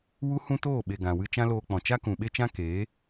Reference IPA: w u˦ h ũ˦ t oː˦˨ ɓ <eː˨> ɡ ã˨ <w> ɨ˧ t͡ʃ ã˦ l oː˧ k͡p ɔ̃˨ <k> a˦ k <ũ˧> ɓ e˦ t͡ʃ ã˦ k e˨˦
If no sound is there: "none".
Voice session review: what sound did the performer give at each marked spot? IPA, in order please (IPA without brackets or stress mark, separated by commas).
e˨, w, t͡ʃ, ũ˨